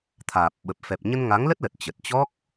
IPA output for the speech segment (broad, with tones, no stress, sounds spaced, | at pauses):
t̪ʰ aː˨˩ p̚ ɓ ə˨˩ p̚ f ɛ˨˩ p̚ ɲ ə˧ n ŋ a˨˦ ŋ l ə˦˥ t̚ l ə˨˩ t̚ t͡ɕ ə˨˩ t̚ t͡ɕ ɔ˦˥ k̚